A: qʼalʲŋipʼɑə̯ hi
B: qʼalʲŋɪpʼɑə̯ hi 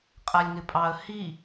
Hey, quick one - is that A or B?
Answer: B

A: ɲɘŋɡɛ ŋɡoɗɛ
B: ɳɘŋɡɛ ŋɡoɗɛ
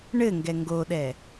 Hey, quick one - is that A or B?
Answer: B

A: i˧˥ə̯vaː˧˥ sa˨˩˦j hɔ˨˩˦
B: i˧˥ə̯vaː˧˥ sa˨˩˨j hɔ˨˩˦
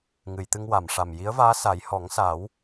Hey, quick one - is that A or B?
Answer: A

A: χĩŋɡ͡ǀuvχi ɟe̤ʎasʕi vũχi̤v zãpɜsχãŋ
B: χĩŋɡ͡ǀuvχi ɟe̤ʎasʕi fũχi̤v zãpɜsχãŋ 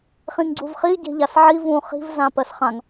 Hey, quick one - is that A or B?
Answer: A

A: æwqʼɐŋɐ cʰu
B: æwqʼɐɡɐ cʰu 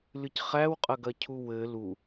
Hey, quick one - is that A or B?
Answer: B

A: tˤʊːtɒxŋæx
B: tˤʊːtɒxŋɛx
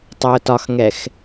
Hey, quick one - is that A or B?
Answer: B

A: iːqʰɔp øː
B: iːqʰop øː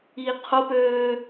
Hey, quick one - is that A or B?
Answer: B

